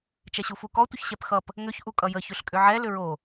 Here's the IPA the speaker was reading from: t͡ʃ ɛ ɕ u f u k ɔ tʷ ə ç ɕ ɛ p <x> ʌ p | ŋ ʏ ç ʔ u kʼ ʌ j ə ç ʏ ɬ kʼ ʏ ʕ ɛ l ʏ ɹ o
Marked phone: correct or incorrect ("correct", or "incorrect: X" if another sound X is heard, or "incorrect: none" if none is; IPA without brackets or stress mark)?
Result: correct